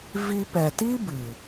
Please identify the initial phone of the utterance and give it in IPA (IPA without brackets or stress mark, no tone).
v